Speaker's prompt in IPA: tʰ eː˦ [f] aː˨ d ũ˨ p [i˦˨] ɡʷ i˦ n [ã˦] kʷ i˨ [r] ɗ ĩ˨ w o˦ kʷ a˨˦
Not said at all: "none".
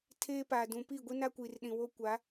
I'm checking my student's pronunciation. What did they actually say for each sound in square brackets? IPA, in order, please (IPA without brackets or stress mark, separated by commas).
p, i˦˨, a˦, r